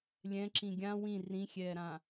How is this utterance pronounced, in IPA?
lʲ ɛ̃ ǁ ĩ ɡʲ ã w ĩ r ĩ xʲ ɛː ɾ ã

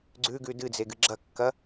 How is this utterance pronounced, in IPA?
ɡ͡ǀ ʉ ɡ ʉ d ɨ d͡z e ɡ ɨ ɡ͡ǁ ɐ kː ɐ

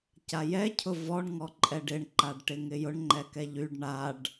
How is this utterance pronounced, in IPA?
c a j ɛ cʰ ʊ v ɔ ɳ ŋ ɔ ǃʼ ɛ ɖ ɪ ɳ ǃ a ɖ ʈ ɪ ŋ ɪ j ʊ ɳ ŋ͡ǃ ɛ k ɛ ʎ y ɖ ɳ a ɖ

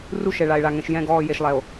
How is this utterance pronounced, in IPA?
r u˦ ʃ ɛ˨ ɭ a˨ e̯ ɭ a˨ ŋ ɛ̃˨ ʃ j ɛ̃˦˨ ɡ ɔː˦˨ j e˨ ʃ lˠ ɛ˨ o̯

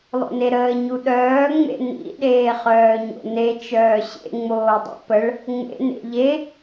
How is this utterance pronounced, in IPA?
lˠ o̰ n e ɾ əː ɲ u ɗ œː ŋ͡m ḛ n ḭ ɗ eː χ œː ɲ o̰ n e t͡ʃ œː ɕ ḛ ŋ͡m oː dˤ ḭ p ə ɭ | ŋ͡m ḛ n ḛ ʎ e

